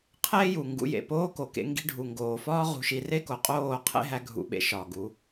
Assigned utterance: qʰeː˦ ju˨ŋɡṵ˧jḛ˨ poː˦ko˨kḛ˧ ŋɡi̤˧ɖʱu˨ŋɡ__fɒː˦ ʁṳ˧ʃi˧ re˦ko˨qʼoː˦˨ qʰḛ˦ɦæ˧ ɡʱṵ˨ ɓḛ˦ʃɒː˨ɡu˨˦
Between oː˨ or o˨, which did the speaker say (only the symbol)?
oː˨